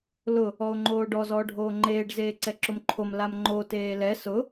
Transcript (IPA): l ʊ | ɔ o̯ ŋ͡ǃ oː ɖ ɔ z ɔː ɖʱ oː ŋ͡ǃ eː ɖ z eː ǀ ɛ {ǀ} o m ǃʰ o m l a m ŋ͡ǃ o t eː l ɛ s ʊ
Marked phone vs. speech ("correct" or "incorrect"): incorrect